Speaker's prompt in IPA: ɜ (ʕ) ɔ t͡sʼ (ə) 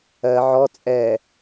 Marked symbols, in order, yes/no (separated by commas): yes, no